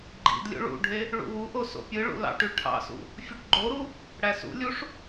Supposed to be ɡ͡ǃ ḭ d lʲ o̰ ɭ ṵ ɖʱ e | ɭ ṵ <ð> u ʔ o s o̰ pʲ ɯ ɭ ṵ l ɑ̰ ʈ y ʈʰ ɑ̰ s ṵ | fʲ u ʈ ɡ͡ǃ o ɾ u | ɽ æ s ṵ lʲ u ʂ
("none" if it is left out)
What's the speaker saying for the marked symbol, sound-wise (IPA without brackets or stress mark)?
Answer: w